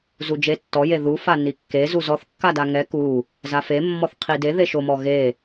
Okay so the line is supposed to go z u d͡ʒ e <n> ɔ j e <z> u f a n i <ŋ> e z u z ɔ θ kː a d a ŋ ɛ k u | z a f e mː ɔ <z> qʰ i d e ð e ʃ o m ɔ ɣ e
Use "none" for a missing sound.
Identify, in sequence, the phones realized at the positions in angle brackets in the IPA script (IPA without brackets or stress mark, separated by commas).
tː, ð, kː, θ